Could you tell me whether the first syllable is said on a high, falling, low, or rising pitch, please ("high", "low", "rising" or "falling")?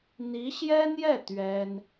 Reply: rising